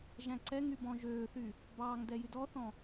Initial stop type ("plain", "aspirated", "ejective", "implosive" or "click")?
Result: click